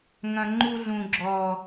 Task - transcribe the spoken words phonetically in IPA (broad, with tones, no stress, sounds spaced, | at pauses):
ŋ ɐ̃˨ ŋ͡ǃ u˧ ɮ ũ˨ ɡ͡ǁ ɔ˨